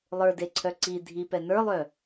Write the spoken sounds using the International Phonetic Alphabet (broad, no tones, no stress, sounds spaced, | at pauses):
lˠ ə˞ d e ǀʰ œ ǀ i dʱ i p ɛ n ə˞ lˠ œ